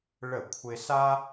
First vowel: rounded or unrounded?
unrounded